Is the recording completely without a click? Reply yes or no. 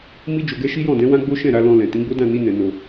yes